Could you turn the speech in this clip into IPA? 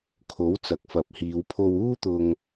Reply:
kʰ o˨˥ w t͡s ɐ˨˥ k̚ f ɐ˨ p̚ h iː˨˧ w pʰ o˧ w uː˥ t̪ ʊ˧ ŋ

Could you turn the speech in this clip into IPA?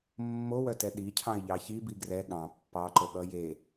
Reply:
mː o w œ t ɛ ɗ i cʰ ɑ̃ ɪ̯ ʎ ɑ ç i b i ɡ r ɛ ɠ ɑ̃ pː ɑ ǃ o ɠ ʌ j e

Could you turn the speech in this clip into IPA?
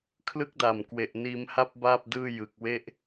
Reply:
kʰ l ɯ˥˩ k̚ d a˨˩ m k w e˨˩ ʔ n iː˧ m h a˦˥ p̚ b aː˥˩ p̚ d ɯː˥˩ j ɯ˨˩ k̚ w e˥˩ ʔ

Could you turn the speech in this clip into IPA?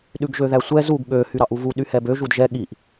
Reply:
ɗ ʉ ɡ ʒ ø ð æ sʷ ɛ z u ɡ ɠ ø h y ɾ ɑ ʔ u v u ɗ y h ɛ b ø ʒ u d ʒ ɛ ɠ i ʔ

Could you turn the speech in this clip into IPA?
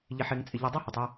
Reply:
ʎ ɪ˨ ħ ɪː˨ ŋ t͡sʼ ɪ˨ ʎ ɔ˨ dˤ a˦ h ɛ˨ tˤ ɪː˦

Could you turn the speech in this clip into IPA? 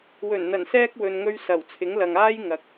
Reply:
w ɵ˨˩ n n̪ ɐ˨˩ n s ɛː˧ k̚ w ɵ˨ n ŋ ɵ˧ ɥ s ɐ˨˩ w t͡sʰ ɪ˨˥ ŋ l ɐ˨ ŋ aː˥ j ŋ ɐ˨ k̚

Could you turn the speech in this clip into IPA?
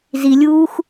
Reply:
z i lʲ uː x

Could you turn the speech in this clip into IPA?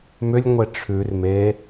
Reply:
m ʏ lʲ ŋʷ e ʈ͡ʂʰ ʉ r m e

